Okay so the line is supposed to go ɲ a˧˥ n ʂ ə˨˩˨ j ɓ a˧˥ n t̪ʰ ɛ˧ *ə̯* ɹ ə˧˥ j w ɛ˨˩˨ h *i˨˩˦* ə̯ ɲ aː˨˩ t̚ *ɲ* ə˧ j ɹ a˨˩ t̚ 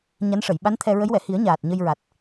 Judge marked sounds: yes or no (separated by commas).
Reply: no, yes, yes